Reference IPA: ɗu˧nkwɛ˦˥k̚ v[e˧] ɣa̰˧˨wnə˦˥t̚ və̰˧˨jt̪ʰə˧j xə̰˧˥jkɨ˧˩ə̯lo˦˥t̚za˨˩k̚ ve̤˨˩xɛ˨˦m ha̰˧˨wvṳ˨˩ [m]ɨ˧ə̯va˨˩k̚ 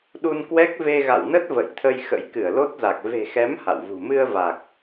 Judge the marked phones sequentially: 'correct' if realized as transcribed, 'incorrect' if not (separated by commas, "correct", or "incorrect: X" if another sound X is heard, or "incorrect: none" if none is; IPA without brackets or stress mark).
correct, correct